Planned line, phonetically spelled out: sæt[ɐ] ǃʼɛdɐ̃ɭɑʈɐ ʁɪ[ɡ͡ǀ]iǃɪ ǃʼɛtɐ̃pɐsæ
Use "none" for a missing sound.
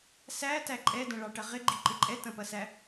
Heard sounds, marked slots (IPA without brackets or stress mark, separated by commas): æ, ɡ͡ǃ